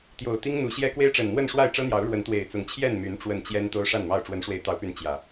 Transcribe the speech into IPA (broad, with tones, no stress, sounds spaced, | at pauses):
t̪ j o˨˩ ʊ̯ t̪ i˦ ŋ n̪ u˨˦ ɕ j ɛ˦ k w e˦ ɪ̯ ʈ͡ʂ ə˨˩ n n̪ w ə˥˨ n ʂ w a˥˨ ɪ̯ ʈ͡ʂ ɤ˦ n̪ j ɑ˨˦ ʊ̯ ɻ w ə˨˦ n t̪ w e˨˩ ɪ̯ t͡s ʊ˨˦ ŋ t͡ɕʰ j ɛ˥˨ n m y˨˦ n ʈ͡ʂ w ə˨˩ n t͡ɕ j ɛ˦ n t̪ o˦ ʊ̯ ʂ a˥˨ n m ɑ˥˨ ʊ̯ ʈ͡ʂ w ə˨˦ n ʂ w e˨˦ ɪ̯ t̪ ɑ˨˦ ʊ̯ p y˨˦ n t͡ɕ j ä˨˩